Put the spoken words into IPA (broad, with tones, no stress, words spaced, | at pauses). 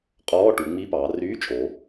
qʼɔː˧˥˧ ʈu˩˧ŋ͡mi˧˥˧pɑː˩˧ ryː˧˥˧t͡ʃʼo˩˧